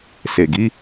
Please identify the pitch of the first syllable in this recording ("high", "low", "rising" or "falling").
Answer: low